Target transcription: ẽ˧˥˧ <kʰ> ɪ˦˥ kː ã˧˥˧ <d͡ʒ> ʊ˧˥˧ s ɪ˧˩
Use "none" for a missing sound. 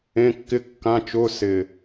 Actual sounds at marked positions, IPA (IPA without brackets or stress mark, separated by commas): kː, t͡ʃ